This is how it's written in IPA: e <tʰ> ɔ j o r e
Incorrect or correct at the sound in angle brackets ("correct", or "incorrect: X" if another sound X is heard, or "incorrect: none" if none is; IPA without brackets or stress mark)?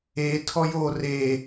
correct